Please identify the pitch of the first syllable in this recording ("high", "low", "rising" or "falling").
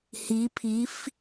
rising